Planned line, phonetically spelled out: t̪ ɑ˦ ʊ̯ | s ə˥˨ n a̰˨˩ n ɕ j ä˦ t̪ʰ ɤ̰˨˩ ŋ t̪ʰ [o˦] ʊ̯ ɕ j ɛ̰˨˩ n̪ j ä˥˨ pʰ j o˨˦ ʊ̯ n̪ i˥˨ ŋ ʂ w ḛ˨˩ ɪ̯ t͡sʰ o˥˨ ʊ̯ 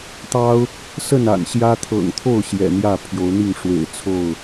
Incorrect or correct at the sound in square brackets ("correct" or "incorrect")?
incorrect